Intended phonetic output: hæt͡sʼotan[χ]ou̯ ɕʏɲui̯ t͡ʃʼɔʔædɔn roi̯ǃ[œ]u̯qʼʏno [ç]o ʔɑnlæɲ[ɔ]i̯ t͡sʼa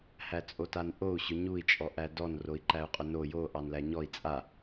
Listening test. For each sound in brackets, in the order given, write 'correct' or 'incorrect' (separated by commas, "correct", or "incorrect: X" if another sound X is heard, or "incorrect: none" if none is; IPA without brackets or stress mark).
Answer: incorrect: ʔ, incorrect: æ, incorrect: j, correct